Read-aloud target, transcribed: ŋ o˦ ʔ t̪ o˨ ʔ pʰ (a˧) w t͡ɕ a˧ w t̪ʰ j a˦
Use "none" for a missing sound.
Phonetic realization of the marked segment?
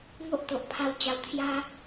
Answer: a˦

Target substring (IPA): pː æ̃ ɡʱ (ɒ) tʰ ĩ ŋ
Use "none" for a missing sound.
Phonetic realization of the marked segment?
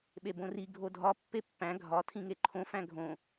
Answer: ɒ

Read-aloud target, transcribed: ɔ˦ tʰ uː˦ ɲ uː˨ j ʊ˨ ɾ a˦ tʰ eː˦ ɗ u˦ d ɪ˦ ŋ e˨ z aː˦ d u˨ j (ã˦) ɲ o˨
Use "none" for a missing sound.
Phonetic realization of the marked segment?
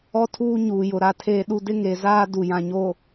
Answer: ã˨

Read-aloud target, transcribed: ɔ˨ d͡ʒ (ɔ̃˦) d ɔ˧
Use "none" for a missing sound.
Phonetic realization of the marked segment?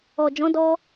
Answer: ɔ̃˨˦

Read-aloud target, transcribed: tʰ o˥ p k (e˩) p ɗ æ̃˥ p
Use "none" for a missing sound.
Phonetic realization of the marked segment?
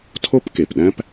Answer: e˩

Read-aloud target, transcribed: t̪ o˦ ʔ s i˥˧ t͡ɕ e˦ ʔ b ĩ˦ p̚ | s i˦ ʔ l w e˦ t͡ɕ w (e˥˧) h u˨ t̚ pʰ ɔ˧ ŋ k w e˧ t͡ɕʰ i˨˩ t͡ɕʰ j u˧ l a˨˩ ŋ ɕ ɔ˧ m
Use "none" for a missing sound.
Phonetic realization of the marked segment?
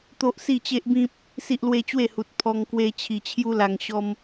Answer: e˥˧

